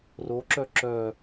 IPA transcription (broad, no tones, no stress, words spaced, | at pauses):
roǁœ ǁœ